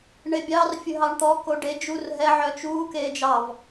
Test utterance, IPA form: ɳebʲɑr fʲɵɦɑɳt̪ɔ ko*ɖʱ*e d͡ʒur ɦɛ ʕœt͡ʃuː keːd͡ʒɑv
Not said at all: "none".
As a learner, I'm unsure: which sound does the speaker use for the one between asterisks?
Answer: ɖ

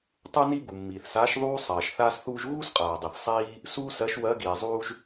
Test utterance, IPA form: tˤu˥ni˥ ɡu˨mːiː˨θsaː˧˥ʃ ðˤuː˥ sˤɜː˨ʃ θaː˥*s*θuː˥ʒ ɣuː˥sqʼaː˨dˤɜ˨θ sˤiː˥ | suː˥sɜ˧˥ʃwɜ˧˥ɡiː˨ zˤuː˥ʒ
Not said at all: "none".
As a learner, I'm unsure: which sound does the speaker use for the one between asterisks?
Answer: s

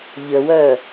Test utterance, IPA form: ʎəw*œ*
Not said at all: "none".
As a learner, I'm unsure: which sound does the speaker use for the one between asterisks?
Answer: œ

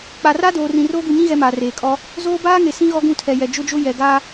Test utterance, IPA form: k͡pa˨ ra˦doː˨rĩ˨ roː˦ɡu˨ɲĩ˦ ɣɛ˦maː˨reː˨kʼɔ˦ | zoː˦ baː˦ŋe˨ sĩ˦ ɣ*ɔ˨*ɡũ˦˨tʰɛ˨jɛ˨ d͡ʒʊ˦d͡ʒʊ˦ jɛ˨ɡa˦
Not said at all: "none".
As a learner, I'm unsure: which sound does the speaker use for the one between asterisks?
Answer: ɔ˦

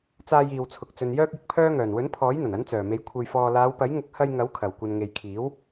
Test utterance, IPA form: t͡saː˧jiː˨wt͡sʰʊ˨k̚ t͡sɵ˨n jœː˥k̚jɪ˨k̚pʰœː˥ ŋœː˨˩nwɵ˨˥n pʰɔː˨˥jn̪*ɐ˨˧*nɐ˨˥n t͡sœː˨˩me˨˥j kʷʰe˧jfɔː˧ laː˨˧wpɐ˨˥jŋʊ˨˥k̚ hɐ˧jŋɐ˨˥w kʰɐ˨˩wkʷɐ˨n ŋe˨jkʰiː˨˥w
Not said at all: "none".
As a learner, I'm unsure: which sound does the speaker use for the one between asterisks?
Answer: ɐ˨˩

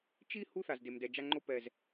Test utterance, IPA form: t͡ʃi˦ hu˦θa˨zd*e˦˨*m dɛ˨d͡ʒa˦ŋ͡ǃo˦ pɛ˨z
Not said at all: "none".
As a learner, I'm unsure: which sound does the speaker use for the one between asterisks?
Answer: e˨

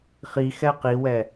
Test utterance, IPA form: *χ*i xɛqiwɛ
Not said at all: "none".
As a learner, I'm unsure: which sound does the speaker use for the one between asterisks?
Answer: χ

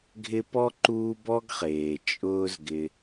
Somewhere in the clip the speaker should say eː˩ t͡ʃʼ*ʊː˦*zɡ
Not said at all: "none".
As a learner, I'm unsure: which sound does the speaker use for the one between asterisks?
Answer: ʊː˦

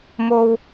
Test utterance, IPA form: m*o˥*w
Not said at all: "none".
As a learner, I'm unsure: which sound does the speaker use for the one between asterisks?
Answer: o˧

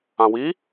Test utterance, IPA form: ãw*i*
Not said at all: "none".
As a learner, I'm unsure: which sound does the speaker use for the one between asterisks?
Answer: i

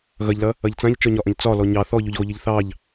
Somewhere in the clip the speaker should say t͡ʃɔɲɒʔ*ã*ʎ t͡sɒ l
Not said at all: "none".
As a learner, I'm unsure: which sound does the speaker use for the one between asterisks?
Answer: ɐ̃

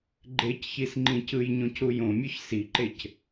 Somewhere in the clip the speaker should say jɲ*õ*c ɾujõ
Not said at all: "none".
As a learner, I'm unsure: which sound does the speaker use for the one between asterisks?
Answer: õ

